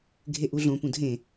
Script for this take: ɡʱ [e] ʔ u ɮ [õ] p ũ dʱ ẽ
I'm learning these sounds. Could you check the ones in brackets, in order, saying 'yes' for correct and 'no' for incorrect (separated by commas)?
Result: yes, yes